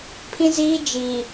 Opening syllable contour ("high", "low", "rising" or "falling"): high